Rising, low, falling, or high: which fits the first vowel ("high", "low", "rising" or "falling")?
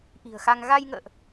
low